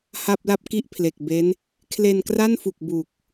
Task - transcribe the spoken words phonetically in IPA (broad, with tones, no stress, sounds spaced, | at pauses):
h a˥˩ p̚ l a˥˩ p̚ k i˥˩ ʔ pʰ l e˨˩ k̚ b e˦˥ n | kʰ l e˧ n k r a˥˩ n f u˨˩ k̚ b u˨˩ k̚